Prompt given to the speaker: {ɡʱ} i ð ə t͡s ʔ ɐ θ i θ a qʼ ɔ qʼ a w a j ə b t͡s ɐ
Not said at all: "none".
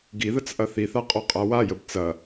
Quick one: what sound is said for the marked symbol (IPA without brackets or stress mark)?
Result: ɡ